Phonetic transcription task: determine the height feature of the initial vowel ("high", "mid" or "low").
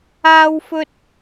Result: low